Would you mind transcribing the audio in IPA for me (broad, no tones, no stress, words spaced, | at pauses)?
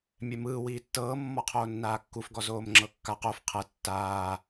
mʲɛmɯː wiːtːɤː mːɔqʰoːnːaːkːuf ɡɔzoːmŋ͡ǁɤkːaq of qʰɤ tːaː